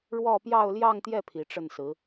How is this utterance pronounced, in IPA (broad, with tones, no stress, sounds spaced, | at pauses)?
ɻ w ɔ˥˧ p j ɑ˥˧ ʊ̯ l j ɑ˥˧ ŋ t̪ j ɛ˥˩ pʰ i˧˥ ʈ͡ʂ ə˥˩ n s ɹ̩˧˥